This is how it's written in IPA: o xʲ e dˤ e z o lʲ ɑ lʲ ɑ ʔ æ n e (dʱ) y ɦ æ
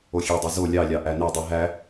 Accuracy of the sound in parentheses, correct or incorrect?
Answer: incorrect